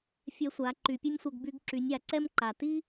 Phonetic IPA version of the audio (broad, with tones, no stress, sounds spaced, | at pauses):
fʲ ɛ˧ sʷ a˩˧ ǃ y˩˧ pʲ œ˥ nʲ sʷ œ˧ ɡ b y˧ ɡ ǁ y˩˧ nʲ a˩ ǀ ɛ˥ m ǃ a˩ t i˥